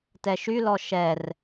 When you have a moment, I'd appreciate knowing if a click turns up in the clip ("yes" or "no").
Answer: no